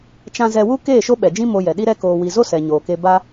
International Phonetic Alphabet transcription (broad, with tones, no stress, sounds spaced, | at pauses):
t͡ʃ ã˧ z ɛ˧ w u˦ k eː˦˨ ʃ o˦ ɓ ɛ˨ d͡ʒ ĩ˦ m o˧ j ɛ˨ ɗ i˦ ɾ ɛ˦ k oː˧ w i˧ z o˦ s ɛ˨ ɲ oː˨ k e˧ b a˦